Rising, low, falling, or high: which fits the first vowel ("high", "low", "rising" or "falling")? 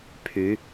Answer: rising